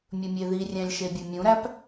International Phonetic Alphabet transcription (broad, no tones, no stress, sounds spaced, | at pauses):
mʲ ɵ mʲ e ð i rʲ æ̃ lʲ ʃ e bʲ ɵ mʲ ũ ɾ æ p